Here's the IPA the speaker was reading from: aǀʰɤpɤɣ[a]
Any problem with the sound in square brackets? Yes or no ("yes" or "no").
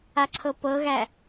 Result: yes